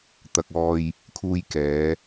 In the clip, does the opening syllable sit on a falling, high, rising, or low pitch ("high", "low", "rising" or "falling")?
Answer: low